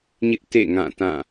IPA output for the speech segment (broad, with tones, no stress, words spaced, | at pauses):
ɲɪ˦ʔ tḛ˦˨ ŋã˦˨tã˦˨